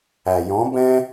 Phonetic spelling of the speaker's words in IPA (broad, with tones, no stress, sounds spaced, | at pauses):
æ˩ j ɔ̃˨˥ b ɛ̃˥